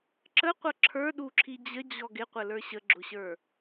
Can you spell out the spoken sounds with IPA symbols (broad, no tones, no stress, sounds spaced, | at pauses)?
ǁ ə qʷ ʌ ǁʰ ə˞ ɗ u ǁʰ i d͡ʑ ə d͡ʑ ɔ ɡ ɪ qʷ ə l ə˞ ɕ ə ɡ͡ǁ ʊ ɕ ə˞